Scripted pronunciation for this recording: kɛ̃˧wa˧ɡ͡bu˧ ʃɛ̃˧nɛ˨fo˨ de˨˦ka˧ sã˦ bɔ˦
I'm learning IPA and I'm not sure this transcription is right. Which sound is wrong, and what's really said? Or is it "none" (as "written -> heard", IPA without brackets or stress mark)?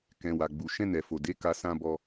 none